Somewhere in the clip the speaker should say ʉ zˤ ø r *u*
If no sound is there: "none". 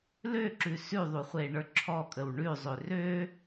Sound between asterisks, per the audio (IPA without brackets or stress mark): ø